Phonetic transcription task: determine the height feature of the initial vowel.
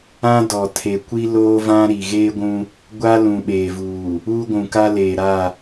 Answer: low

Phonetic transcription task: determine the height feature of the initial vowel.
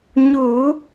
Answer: high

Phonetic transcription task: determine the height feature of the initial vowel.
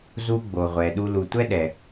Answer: high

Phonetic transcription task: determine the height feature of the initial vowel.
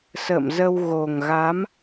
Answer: mid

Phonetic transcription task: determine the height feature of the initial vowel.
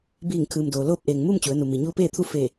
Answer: high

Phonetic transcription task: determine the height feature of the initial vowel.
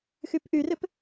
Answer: high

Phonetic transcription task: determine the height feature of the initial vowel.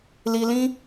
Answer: high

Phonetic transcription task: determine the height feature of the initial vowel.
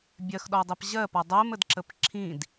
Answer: mid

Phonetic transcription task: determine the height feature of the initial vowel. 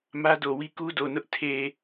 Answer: low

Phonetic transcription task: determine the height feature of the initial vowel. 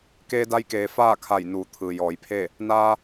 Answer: mid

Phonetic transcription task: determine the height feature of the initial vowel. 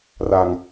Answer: low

